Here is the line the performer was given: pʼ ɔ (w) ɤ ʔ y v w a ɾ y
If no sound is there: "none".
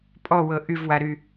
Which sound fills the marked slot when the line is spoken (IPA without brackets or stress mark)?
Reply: w